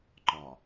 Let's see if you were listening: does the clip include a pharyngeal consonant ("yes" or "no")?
no